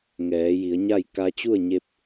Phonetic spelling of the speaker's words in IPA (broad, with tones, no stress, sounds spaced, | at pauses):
ŋ ɛː˩˧ j i˩˧ ə̯ ɲ a˥˨ j k a˧ t͡ɕ u˥˨ ə̯ ɲ e˧ p̚